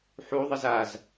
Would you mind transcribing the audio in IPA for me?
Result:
ħuðˤəz az

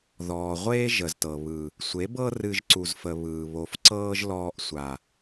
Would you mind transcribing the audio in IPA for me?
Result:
ðɔː˨ ʁʷeː˦ ʒə˨ztɤ˨ βɯ˨ | sʷe˨˦bɤ˦ rɨ˧ʒǀu˨zfə˨ βɯː˨ βo˨fǀɤː˦ʒ lɔː˧ʔsʷa˨

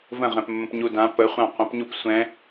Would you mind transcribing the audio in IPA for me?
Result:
və̃ʁɛ̃pmːə̃p ɲudã pəχʷã qʷə̃pɲup sʷɛ̃

